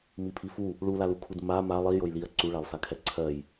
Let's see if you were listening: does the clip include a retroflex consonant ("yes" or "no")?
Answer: yes